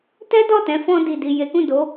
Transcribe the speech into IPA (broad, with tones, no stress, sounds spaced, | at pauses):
t ɛ˦ d ɔ˦˨ t ɛ̃˨˦ f ɔ̃˧ d i˨ d i˨ j e˨˦ k ũ˦˨ d o˨˦